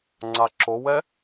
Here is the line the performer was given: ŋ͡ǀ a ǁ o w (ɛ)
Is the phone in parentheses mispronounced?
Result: no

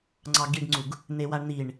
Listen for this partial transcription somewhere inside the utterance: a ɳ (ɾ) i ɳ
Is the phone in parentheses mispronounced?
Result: yes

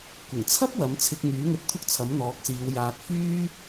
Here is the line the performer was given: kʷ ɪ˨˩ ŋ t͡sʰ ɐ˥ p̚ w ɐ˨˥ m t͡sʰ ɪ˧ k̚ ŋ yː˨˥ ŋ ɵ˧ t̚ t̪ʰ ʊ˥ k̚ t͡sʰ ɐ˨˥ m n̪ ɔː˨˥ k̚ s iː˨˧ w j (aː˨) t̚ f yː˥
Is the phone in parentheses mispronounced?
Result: no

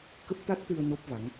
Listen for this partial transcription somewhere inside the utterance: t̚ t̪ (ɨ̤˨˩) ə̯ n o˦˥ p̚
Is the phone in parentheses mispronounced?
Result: yes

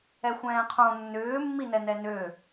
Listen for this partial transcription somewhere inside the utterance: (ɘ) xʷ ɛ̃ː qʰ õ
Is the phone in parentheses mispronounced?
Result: yes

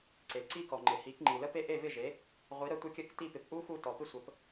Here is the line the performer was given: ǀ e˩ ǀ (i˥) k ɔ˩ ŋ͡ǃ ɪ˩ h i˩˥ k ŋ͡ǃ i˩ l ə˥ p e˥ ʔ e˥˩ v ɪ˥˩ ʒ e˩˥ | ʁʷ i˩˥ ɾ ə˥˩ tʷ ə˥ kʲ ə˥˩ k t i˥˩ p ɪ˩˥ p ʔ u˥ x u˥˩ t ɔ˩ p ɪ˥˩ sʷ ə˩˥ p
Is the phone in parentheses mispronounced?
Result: no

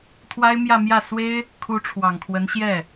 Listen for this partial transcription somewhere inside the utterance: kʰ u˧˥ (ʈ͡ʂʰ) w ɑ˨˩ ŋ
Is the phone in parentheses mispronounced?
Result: no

